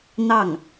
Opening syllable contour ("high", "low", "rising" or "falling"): falling